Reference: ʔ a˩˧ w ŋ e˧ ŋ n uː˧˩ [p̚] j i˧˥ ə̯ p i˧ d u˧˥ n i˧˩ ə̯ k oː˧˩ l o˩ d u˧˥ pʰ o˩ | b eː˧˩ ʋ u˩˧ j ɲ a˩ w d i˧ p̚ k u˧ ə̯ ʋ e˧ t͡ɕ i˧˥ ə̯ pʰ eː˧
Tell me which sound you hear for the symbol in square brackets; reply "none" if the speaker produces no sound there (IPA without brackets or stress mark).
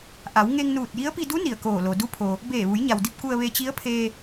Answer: t̚